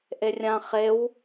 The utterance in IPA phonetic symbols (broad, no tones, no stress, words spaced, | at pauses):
ʔerʲã χew